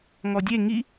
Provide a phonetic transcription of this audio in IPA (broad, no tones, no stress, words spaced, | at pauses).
ŋɔdʲe ŋi